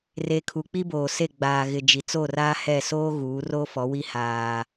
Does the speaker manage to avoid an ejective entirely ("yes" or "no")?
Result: yes